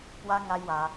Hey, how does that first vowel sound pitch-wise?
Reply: high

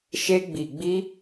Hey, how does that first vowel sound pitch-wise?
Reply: high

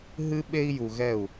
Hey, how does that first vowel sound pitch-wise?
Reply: high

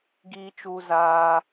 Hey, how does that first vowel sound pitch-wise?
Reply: high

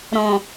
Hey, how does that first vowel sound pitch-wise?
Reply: low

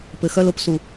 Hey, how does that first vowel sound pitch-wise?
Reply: low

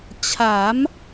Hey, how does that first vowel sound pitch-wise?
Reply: rising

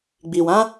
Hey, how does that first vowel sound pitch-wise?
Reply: low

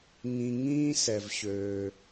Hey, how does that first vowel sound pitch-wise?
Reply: low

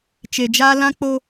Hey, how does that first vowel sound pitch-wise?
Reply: low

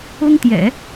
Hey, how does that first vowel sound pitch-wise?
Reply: high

